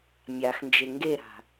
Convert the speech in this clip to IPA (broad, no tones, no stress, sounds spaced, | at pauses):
mʲ a x n d͡ʒ e ŋ ɡ e ɾ a̤